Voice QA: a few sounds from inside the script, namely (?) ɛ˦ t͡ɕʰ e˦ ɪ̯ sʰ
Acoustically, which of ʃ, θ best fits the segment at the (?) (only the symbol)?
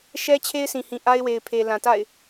ʃ